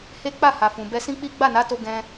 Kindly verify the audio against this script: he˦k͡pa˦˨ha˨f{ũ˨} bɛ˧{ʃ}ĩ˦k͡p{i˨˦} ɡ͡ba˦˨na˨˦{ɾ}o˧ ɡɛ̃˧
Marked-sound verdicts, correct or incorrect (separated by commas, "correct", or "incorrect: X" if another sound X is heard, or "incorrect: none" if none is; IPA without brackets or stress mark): correct, incorrect: s, incorrect: i˦, incorrect: t